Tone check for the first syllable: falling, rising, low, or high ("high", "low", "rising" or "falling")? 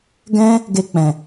high